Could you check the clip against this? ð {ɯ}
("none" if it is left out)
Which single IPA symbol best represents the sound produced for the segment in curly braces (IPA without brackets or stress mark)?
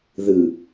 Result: ɯ